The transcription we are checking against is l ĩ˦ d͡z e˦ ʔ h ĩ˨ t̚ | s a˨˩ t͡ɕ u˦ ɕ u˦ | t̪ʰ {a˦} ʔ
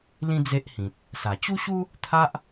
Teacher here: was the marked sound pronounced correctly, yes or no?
yes